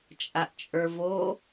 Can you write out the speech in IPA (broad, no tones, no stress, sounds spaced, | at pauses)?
t͡ʃʼ a ʔ t͡ʃʼ ə˞ v o